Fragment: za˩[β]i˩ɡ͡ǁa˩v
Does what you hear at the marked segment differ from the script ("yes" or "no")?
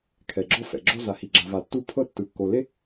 yes